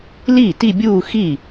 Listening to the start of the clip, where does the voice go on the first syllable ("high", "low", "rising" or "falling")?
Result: falling